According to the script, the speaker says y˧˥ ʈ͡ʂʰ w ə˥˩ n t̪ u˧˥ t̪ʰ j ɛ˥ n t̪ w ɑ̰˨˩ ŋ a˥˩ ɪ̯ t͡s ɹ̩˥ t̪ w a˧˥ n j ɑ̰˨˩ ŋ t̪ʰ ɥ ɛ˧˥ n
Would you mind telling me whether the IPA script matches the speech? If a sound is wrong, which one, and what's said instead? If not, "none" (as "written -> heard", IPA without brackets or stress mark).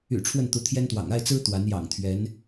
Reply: y˧˥ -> y̰˨˩